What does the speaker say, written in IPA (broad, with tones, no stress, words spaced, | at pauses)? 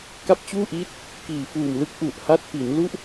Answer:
ka˦˥p̚t͡ɕuː˥˩ʔiː˦˥t̚ | kiː˨˩fuː˨˩mlɯ˦˥k̚ ʔu˨˩ʔ ha˦˥t̚pi˩˦n lu˥˩ʔ